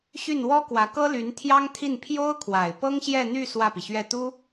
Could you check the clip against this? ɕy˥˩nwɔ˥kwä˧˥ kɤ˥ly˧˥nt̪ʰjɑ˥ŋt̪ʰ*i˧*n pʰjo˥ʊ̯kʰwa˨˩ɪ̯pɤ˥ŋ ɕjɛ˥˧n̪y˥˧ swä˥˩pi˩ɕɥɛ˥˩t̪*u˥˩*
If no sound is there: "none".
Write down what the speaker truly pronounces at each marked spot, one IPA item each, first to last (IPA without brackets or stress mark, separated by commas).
i˥˩, u˥